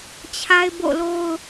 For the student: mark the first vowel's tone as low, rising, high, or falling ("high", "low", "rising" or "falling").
high